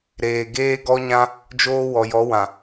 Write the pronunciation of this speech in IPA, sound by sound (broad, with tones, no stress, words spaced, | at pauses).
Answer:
ɾeː˨ɡeː˦ ɡɔ˦ɲã˦ | d͡ʒoː˦ wɔ˨jɔ˨˦wã˨